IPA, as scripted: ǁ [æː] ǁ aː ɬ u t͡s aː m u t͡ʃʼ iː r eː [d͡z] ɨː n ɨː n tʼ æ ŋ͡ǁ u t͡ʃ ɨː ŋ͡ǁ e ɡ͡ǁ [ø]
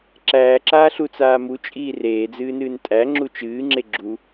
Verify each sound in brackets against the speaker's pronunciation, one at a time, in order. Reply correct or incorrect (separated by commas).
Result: correct, correct, incorrect